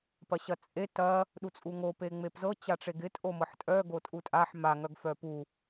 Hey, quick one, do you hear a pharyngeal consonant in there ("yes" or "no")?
yes